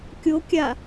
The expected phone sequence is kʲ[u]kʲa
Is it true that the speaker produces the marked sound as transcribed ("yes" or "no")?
no